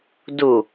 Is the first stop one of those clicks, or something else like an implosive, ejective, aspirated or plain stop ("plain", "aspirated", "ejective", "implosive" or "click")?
plain